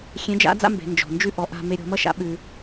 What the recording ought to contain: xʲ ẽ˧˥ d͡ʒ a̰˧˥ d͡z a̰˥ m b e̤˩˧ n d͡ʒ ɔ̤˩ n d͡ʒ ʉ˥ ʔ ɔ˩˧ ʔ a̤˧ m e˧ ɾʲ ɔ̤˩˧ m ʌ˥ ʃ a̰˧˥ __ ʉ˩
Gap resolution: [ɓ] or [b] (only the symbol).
ɓ